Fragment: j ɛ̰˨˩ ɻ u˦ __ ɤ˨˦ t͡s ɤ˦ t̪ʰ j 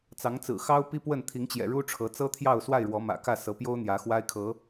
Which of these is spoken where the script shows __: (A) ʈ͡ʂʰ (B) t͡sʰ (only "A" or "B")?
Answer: A